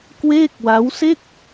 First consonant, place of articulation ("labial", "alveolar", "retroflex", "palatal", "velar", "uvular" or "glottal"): velar